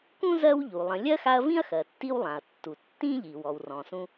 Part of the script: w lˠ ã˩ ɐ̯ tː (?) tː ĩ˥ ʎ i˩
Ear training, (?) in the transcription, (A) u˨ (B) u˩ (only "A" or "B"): B